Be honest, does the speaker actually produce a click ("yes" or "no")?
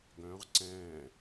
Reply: yes